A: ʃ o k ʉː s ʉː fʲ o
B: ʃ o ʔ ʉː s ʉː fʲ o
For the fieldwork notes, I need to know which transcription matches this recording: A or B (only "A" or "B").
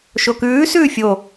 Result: A